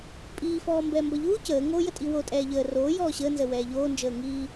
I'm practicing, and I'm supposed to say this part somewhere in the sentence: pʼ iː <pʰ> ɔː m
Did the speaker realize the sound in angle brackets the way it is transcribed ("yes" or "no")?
no